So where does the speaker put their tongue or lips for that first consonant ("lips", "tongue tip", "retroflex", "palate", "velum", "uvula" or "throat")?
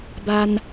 lips